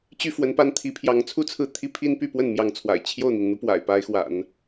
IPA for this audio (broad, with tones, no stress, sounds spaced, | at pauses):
t͡ɕ y˥˩ f w ə˧˥ n p a˥˩ n t̪ʰ i˧˥ pʰ j ɑ˧˥ ŋ t͡sʰ u˥˧ t͡sʰ ɹ̩˥˩ t̪ʰ i˥ pʰ i˥ n p y˥˧ p w ə˥˩ n m j ɑ˧˥ ŋ t͡sʰ w a̰˨˩ ɪ̯ t͡ɕʰ j o˥˩ ʊ̯ n̪ i˩ n n̪ u˧˥ p w a̰˨˩ ɪ̯ p a˧˥ ɪ̯ x w a̰˨˩˦ n